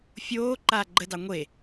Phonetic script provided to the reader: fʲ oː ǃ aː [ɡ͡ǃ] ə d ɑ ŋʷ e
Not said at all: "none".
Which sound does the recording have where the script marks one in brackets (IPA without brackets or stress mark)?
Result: ɡ͡ǃ